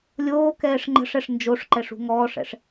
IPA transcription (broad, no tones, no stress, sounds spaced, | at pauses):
lʲ oː k ɛː ʂ ŋ͡ǃ ə̤ ʂ ɛ ʂ n d͡ʒ o ʂ ǃ ɛ ʂ ṳ ŋ ɔː ʂ ɛ̰ ʂ